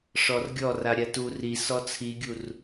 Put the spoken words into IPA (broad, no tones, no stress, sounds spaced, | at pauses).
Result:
ʂ ɔ r ɡʲ ɔ r a ɾʲ a t u r i s ɔ t͡sʰ i ɡʲ u r